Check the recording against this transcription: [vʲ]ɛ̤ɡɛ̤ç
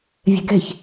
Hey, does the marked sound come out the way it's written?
yes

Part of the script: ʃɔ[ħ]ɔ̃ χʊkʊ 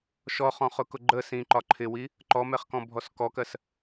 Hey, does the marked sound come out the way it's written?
no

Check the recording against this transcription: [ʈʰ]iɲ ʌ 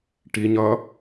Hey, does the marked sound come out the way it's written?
no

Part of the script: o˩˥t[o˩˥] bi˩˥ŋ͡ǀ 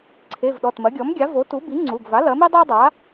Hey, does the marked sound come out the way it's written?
no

